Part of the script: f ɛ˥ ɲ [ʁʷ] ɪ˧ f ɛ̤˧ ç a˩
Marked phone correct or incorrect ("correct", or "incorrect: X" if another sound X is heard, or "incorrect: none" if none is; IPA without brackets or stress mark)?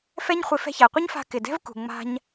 incorrect: χʷ